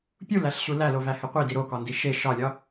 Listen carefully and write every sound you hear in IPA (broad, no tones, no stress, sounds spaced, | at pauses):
pʲ u l æ ɬ ɕ u l æ l o v æ h e qʷ i d i ɾ o k ɒ n d i ʃ e ʃ ɒ lʲ ɒ